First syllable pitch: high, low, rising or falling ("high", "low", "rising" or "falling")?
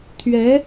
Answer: rising